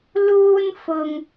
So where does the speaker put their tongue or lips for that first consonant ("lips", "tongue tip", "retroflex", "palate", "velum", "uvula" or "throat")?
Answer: tongue tip